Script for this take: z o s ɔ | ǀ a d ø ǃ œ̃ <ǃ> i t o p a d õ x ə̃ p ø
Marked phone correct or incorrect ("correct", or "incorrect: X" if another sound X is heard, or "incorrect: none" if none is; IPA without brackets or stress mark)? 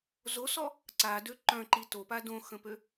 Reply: correct